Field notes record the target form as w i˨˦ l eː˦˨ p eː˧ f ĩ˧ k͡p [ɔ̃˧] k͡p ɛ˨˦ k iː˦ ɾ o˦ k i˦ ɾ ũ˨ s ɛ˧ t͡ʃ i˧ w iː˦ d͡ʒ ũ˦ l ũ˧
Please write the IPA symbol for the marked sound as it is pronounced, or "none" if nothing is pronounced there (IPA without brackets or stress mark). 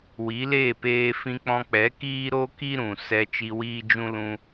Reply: ɔ̃˧